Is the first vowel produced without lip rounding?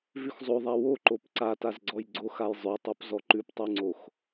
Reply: no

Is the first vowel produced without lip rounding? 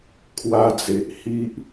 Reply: yes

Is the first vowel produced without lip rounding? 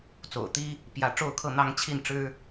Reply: no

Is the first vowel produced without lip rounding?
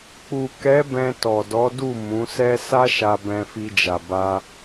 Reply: no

